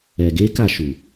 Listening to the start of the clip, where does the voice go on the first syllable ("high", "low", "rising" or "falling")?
low